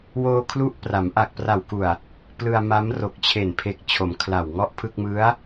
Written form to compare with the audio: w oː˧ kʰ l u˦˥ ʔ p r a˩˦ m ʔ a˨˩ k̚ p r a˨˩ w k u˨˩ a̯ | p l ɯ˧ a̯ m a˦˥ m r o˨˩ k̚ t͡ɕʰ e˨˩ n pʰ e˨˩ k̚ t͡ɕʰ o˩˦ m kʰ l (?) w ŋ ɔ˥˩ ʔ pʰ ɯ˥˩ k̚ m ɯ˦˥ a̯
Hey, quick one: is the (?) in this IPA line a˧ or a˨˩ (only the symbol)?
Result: a˨˩